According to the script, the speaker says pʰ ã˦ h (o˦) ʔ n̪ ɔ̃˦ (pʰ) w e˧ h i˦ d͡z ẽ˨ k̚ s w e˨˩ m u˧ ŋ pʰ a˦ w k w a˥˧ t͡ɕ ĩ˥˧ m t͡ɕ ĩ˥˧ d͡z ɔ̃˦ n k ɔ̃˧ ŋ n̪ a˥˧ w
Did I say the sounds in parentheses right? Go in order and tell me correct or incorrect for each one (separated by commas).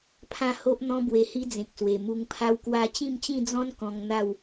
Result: correct, incorrect